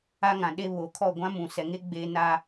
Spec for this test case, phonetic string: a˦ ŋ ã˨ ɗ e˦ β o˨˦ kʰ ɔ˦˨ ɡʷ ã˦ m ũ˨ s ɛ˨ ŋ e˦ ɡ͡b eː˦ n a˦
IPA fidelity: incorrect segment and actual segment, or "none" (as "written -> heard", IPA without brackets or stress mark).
none